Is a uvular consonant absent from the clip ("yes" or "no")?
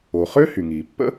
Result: no